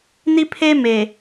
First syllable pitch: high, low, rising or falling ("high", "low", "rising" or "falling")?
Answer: high